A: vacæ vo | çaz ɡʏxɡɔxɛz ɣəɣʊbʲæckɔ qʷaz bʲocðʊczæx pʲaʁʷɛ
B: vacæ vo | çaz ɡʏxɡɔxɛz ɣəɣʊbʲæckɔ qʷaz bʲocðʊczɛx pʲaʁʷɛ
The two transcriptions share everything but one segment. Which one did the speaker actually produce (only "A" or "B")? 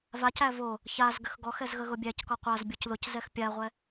B